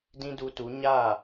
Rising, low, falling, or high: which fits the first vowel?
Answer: high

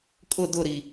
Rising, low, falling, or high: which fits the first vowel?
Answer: falling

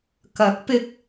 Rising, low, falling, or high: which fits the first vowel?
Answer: rising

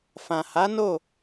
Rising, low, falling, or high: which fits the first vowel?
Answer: low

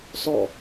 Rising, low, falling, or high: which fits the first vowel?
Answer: falling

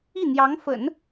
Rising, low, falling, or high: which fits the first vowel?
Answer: falling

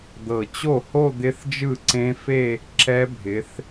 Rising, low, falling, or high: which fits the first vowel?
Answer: low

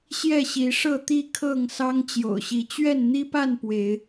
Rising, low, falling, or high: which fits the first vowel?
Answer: falling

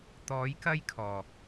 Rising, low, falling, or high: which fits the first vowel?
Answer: rising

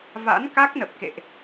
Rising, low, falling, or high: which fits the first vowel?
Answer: rising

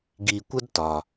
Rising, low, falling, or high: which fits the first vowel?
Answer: low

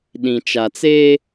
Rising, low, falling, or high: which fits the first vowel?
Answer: low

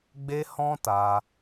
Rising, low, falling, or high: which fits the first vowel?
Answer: high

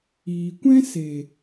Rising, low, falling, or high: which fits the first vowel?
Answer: low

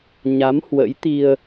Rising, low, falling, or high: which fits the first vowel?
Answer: rising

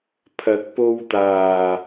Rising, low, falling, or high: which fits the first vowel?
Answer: rising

